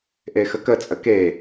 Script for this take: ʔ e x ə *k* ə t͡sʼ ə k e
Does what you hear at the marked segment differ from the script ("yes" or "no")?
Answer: no